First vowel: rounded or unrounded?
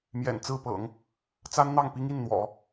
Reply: unrounded